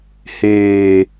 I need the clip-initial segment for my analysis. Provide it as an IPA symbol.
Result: h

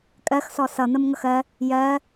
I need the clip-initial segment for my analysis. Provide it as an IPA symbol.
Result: kʼ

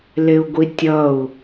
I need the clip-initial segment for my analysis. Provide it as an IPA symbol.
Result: l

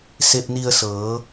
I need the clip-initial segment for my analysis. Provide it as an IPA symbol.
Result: s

